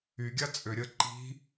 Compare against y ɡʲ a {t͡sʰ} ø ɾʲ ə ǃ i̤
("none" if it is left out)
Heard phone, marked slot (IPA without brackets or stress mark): t͡sʼ